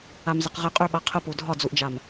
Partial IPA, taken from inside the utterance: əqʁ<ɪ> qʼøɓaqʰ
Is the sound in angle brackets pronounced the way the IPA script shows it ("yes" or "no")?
yes